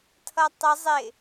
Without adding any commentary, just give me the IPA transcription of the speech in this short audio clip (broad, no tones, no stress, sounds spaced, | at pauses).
tʰ ʌ tˤ ə zˤ ɪ